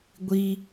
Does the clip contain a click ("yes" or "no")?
no